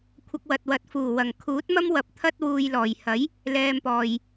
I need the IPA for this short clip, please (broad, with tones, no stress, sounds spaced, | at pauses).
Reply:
kʷʰ ɐ˧ k̚ w ɐ˨ t̚ w ɐ˨˥ t̚ f uː˨˩ w ɐ˨˩ ŋ kʰ uː˨˥ t̚ m ɐ˥ m w ɐ˨ p̚ t̪ʰ ɐ˥ t̚ w uː˨ j l ɔː˨˩ j h ɐ˨˥ j | l ɛː˧ m p ɔː˨ j